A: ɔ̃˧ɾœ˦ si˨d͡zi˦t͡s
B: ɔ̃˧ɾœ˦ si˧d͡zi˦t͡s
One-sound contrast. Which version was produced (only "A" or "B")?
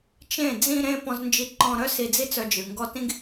B